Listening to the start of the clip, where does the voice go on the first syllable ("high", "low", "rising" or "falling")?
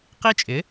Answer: high